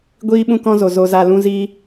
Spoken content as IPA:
ɡʷ iː˦ ɓ ũ˦ k ɔ̃˦ z o˨ z o˧ z a˧ l ũ˦ z i˦

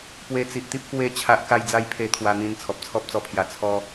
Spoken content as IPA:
p w e˧ t͡s i˨ ʔ t̪ i˦ p̚ k w e˧ t͡ɕʰ a˦ ʔ k a˦ j d͡z a˦ j pʰ e˧ t̪ʰ w a˧ n̪ ĩ˧ n t͡sʰ ɔ˨ p̚ t͡sʰ ɔ˦ p̚ t͡s ɔ˧ pʰ j a˨˩ t͡sʰ ɔ˦

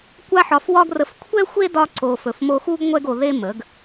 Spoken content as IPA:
kʷ a˦ ħ ɒ˧ f w ɒ˦ ɡ r ə˧ f kʷʰ ɛ˦ xʷ e˦ d ɒ˧ ǀ o˨ f ɵ˨ f m o˧ x u˦ ɡ ŋʷ ɛ˦ ɡ o˧ ð e˦ m ə˨˦ ɡ

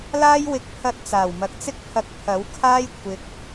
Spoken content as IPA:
l aː˥ j w ɪ˧ k̚ pʰ ɐ˧ t̚ t͡s aː˨˩ w m ɐ˨ k̚ t͡s ɪ˥ k̚ pʰ ɐ˧ k̚ pʰ ɐ˨˥ w kʰ aː˥ j kʷʰ ɪ˨ k̚

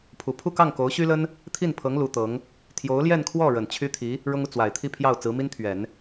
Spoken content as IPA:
pʰ u˨˩ pʰ u˥˧ k ɑ˥˩ ŋ k o˧˥ ʊ̯ ɕ y˥ l ə˥ n | t̪ʰ i˥˩ n pʰ ɤ˧˥ ŋ l u˧˥ t̪ ɤ˧˥ ŋ | t̪ʰ j o˧˥ ʊ̯ l j ɛ˥˧ n kʰ w ɔ˥˩ ɻ ə˨˩ n t͡ɕʰ y˥ t̪ʰ i˧˥ | ɻ ʊ˥ ŋ u˨ t͡s w a˨˩ ɪ̯ t̪ʰ i˥˧ pʰ j ɑ˥˩ ʊ̯ t͡s ɹ̩˧˥ m i˥ n t̪ʰ ɥ ɛ˨˩˦ n

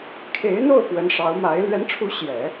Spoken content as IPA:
kʰ e˧˥ ɪ̯ n̪ o˥˩ ʊ̯ p w ə˧˥ n ʂ ɑ˧˥ ʊ̯ m a˧˥ ɪ̯ l ɥ ɛ˧˥ n ʈ͡ʂʰ u˧˥ ɕ j ɛ˨˩˦

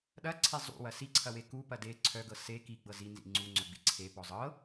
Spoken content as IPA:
ɗ ɐ ǀʰ e zˤ ṵ w ɐ s i ǀʰ ɐ w e k u p ɐ d e ǀʰ œ ɡ ɤ s e k i ɡ͡b ɤ z i n z ḭ ŋ͡ǀ u ŋ͡ǀ œ ɡ͡b ḭ ǀʰ e p ɔ zˤ ɤ

